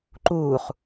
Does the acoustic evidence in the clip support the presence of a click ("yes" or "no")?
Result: yes